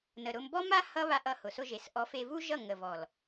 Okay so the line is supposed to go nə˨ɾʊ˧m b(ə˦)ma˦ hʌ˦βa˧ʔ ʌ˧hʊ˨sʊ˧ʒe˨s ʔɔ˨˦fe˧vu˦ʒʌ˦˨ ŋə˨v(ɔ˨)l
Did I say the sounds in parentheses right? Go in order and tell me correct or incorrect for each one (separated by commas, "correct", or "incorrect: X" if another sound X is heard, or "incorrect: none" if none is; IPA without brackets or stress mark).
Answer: incorrect: ɔ˦, correct